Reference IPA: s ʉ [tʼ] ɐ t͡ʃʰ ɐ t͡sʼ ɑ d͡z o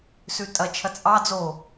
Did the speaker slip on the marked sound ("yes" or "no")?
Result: no